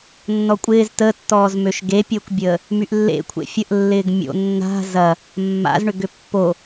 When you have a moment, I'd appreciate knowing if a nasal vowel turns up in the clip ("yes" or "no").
no